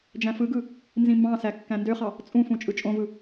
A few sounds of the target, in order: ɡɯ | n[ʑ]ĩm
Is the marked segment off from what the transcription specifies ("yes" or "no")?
yes